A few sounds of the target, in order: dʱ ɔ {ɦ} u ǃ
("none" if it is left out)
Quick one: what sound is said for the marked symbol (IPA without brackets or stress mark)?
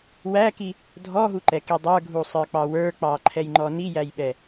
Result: ɦ